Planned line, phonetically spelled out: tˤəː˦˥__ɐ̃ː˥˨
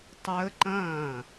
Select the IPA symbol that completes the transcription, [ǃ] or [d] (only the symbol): ǃ